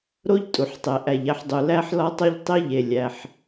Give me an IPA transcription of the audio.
ɾo˥ʎ tʼu˩ħtˤe˩ ʔæ˩ʎ æ˧ħdˤu˩ læ˥ħlɒ˥tˤo˥ʎ tˤi˥ ʎe˩ lʲæ˩ħ

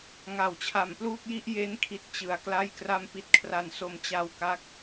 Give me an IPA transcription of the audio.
ŋa˩˦wt͡ɕʰa˩˦mpluː˥˩k̚ji˥˩ʔ je˦˥nkʰi˨˩t̚ t͡ɕɯ˩˦a̯kla˥˩j kra˧mpi˨˩t̚kʰra˩˦nso˩˦m t͡ɕa˧wka˦˥k̚

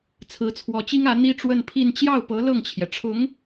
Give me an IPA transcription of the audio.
t͡sʰɹ̩˧˥t͡sʰwɔ˧˥t͡ɕi˥ŋä˧˥ n̪i˥ʈ͡ʂwə˥˧npʰi˥˧n t͡ɕjɑ˥˩ʊ̯pɤ˧˥ lɤ˥˩ŋt͡ɕʰjɛ˩ʈ͡ʂʰʊ˧˥ŋ

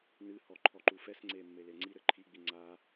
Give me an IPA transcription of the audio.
nɨhɔ ǃʰɔǃufɛsŋ͡ǀe mːeleŋ͡ǀiɾɘ ǃʰiɡ͡bi ŋ͡ǀa

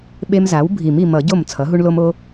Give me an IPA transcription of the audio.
ɓe˦mza˩˥wbʱi˨˩˦m i˨mʌ˨˩˦ɟo˥˩m t͡sʰʌ˩˥ɦu˦ɳlo˦m o˦

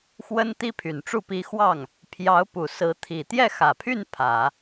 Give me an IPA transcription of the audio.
xwə˥nt̪i˥pʰy˨˩nʈ͡ʂu˥˩ pi˧˥ xwɑ˥˩ŋ | pʰjɑ˧˥ʊ̯pu˨˩sɹ̩˧˥ t̪ʰi˨˩t̪jɛ˥˩xä˨˩pʰy˥˩n pʰä˨˩˦

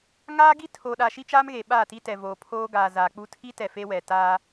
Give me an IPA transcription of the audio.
ŋaː˦ ɡi˦tʰo˨ɗa˨ ʃi˦ t͡ʃaː˦m ɣe˨ɓaː˦˨ti˦tɛ˨ voː˨pʰoː˦ ɡaː˨zaː˨k͡pu˦ tʰi˦tɛ˨ fe˦wɛ˨ taː˦

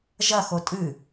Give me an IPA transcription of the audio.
ʒɐxo tʼɨ

